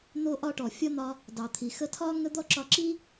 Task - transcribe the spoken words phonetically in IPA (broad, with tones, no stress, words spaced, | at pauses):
n̪o˥ʔɒ˥ʈɔ˩ fʲɒ˥n̪ɒ˧ | dɑ˩t̪ʰi˩xə˧ tʰɒ˥ ŋə˥d̪ɔ˥ǁɒ˧ ǁi˥